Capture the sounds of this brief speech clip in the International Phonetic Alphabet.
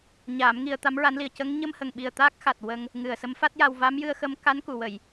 ɲaː˨˩˦m ŋi˧ə̯ t̪a˧˥mɹa˧˥nli˨˩ə̯ cə˧˥ŋ ɲə˧mhə˨˩ŋɓi˨˩ə̯ t̪aː˦˥k̚xa˨˩t̚ wə˧ŋ | ŋɨ˨˩ə̯sə˧˥mfa˦˥t̚ja˧w va˧˥mjɨ˧ə̯xə˧m ka˧˥n ku˨˩˨wə˨˩˨j

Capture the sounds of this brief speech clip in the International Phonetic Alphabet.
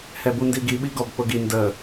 hɛbundiɡi ɓiɡɔbk͡pʊɡi ndə

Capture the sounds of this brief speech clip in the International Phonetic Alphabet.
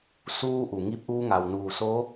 suː˧ʔu˩ŋi˧p̚ʔuː˧ ŋa˩wnuː˧˩soː˧˥

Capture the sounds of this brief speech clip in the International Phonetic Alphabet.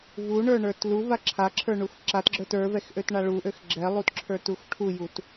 vuɳə˞ɳə˞t luva ǁʰaǁʰə˞ɳux ǁatɡ͡ǁə˞t ə˞vɛxʔøtɳa ɭuʔøx ɡ͡ǁɛlˠutǁʰə˞tux ʈʰujut

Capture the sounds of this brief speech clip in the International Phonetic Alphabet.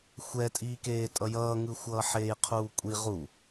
xʷɛtʼiːkeː tʼʌjʌːŋɯ xʷʌːħeːjqʰuːkʷʼi ʁu

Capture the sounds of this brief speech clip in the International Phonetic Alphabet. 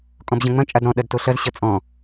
kʼɔ̃bʑɐ̃ŋ͡mɐ̃ t͡ʃʼadɾɔ̃ ɗɐdtoɬɐz ɕɐt͡sʼɔ̃

